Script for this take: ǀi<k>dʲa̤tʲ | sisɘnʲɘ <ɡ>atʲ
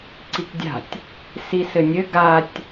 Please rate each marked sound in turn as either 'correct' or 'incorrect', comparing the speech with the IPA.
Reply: correct, correct

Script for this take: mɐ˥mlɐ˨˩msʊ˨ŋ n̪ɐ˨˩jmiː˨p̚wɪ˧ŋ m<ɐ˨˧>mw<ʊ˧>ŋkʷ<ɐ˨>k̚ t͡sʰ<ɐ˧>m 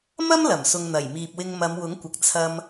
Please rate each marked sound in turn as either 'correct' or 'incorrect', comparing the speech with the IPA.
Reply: correct, incorrect: ʊ˨˥, correct, correct

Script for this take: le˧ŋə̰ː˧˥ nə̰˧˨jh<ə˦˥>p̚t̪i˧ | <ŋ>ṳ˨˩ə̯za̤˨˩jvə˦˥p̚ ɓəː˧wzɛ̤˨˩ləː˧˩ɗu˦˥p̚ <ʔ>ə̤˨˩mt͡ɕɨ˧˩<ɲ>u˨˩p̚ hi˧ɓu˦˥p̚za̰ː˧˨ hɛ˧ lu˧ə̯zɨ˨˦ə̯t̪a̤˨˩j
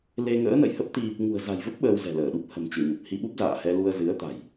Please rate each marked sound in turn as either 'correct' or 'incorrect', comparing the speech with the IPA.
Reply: correct, correct, incorrect: h, correct

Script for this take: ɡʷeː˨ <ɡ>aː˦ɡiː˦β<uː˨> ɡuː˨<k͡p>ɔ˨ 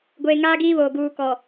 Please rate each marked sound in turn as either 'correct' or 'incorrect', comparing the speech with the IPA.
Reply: incorrect: ŋ, incorrect: oː˨, incorrect: k

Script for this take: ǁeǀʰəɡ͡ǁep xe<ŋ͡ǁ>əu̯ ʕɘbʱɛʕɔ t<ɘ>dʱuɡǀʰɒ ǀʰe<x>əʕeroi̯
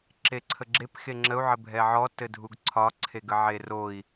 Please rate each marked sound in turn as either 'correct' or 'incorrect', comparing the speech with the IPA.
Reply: correct, correct, incorrect: ɡ

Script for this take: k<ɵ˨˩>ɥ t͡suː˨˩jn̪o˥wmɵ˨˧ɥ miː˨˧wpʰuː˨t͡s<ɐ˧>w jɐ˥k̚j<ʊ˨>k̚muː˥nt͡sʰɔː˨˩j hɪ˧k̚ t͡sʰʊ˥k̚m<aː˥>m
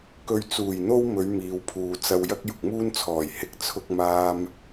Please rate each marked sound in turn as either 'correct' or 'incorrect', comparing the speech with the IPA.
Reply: incorrect: ɵ˧, correct, correct, correct

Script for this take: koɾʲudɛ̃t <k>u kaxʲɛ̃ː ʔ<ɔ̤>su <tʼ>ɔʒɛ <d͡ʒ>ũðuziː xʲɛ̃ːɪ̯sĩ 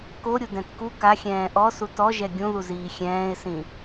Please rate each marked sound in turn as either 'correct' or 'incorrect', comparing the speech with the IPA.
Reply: correct, incorrect: ɔ, incorrect: t, incorrect: ɡʲ

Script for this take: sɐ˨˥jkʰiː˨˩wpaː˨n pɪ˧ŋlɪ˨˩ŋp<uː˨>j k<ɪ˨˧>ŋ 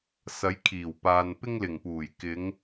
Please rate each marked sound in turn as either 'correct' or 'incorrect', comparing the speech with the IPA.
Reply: incorrect: uː˨˩, correct

